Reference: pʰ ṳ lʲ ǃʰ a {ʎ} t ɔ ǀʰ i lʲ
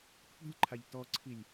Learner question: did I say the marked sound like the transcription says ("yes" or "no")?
yes